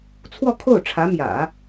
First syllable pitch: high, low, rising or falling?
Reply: falling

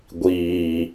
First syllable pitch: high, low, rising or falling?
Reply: low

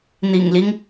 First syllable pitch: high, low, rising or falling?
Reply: low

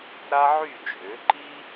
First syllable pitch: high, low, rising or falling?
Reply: high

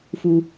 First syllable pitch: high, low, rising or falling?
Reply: low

